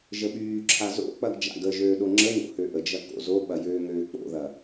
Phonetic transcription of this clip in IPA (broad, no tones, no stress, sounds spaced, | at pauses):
ʒ ə ɓ yː ǁʰ a z o̰ k͡p ɐ ɡ d͡ʒ a̰ ɡ ə ʒ øː ɗ o ŋ͡ǁ ə ŋ o̰ h ø ʔ ə d͡ʒ ɐ k o̰ z o ɓ ɐ j øː ŋ øː k͡p o̰ ð ɐ